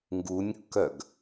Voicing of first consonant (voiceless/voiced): voiced